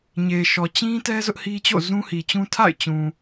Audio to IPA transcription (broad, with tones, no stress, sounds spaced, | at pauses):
ɲ e˨ ʃ ɔ˨ t͡ɕ ĩ˦ t ɛ˦ z ʊ˦ ʔ h i˦ t͡ɕ o̰˦˨ z ũ˦ h i˨ t͡ɕ ũ˦ tʰ a̰˦˨ ɪ̯ t͡ɕ ũ˨